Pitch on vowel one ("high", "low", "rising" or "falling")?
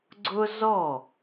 high